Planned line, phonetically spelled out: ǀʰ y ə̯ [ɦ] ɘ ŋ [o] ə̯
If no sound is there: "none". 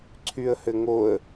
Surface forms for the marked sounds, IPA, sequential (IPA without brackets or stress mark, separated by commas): h, o